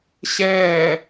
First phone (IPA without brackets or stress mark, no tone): ɕ